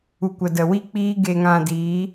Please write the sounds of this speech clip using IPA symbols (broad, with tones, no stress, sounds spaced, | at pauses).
u˨ kʷ ə˨ d ə˨ w i˦ k͡p iː˦ ɡ e˧ ŋ ã˧ d iː˨˦